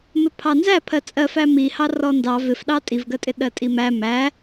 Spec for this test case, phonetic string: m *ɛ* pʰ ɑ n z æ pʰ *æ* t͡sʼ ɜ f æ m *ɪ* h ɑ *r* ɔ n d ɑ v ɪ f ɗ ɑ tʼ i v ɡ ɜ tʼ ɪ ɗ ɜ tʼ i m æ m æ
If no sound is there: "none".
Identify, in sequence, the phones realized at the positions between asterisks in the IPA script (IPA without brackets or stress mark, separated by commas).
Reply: ɪ, ɜ, i, r